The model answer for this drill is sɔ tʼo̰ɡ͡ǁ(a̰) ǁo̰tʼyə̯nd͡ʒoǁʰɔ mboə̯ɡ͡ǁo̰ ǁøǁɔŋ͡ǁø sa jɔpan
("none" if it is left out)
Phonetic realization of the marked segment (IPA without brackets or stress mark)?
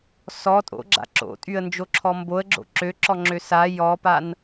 a̰